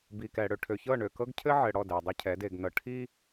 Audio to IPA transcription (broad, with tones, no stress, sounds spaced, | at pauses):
b i˨ k ɛ˨ ɽ ø˨ ʈʰ ø˨ ç ɤ˦˨ ɳ ø˨ k ɤ˦ ɡ cʰ ɘ˦ ʕ ɘ˨ ɽ ɔ˦˨ d ɛ˨ dˤ i˦ cʰ ɛ˨˦ d e˨ ɡ n ɤ˨ ʈʰ i˦